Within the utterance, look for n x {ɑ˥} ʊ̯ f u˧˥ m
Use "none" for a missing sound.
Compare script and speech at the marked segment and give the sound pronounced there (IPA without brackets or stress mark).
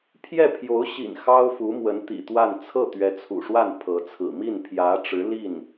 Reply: ɑ˥